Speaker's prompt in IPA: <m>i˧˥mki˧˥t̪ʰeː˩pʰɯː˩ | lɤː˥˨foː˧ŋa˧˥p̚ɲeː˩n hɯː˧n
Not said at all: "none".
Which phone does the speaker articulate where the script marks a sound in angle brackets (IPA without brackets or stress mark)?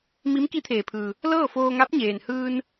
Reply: m